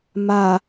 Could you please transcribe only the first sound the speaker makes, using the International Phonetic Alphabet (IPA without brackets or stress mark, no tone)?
m